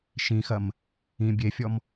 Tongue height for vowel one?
high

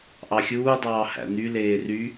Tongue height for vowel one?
low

